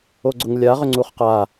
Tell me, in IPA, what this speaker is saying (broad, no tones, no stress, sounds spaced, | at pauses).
o ɡ͡ǀ ʊ ŋ lʲ a ʁ ʏ ŋ͡ǀ u χ q a